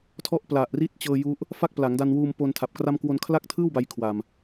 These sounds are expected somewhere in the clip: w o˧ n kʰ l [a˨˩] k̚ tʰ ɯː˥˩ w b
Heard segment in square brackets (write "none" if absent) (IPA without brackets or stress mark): a˥˩